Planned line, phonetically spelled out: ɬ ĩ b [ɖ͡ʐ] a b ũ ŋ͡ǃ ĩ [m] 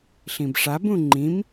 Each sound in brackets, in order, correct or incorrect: incorrect: ʂ, correct

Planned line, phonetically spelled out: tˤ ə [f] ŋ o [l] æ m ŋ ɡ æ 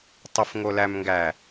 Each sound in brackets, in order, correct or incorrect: correct, correct

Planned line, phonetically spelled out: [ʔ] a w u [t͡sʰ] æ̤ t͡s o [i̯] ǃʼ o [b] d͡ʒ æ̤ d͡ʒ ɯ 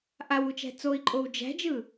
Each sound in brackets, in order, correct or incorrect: correct, incorrect: t͡ʃ, correct, incorrect: w

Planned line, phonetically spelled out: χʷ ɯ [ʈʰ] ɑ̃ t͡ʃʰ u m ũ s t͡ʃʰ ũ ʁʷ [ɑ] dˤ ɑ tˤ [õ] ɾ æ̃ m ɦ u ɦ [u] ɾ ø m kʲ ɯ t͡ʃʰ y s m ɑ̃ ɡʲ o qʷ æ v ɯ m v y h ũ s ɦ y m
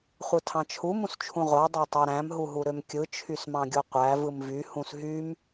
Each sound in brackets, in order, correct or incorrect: incorrect: tʰ, correct, incorrect: o, correct

